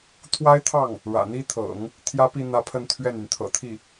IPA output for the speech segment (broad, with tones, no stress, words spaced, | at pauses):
t̪ʰwa˥ɪ̯t̪ʰɑ˥˩ŋ | ɻä̰˨˩n̪i˥t̪ʰɤ̰˨˩˦ŋ | t̪ʰjä˥pi˥˧ n̪ä˥˧pʰə˥˧nt̪ʰɥɛ˥˩ny˩n t̪ʰɤ̰˨˩t̪ʰi˥˩